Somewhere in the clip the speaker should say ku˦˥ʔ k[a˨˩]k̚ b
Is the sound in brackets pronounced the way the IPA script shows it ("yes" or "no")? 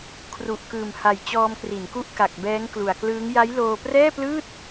yes